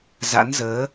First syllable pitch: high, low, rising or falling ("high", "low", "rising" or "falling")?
rising